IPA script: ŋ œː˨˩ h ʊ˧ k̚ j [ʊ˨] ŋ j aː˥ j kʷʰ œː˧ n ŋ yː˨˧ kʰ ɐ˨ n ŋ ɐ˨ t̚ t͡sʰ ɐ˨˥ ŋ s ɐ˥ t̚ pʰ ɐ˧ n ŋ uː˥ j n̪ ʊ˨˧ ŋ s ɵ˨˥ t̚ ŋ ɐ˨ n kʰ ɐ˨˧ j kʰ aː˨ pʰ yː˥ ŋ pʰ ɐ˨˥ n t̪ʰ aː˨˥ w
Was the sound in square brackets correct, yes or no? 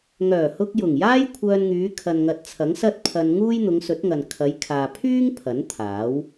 no